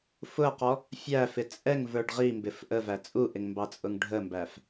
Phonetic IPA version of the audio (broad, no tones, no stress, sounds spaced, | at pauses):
f ʊ ɐ̯ q ɔ | fʲ æ f ɪ t͡sʼ ɛ ŋ v ə˞ ɖ ʁ i m b ɪ f ʔ ə v æ t͡sʼ u ʔ ɪ ŋ m b ɑ t͡sʼ ʊ ŋ ɖʱ ə m b æ f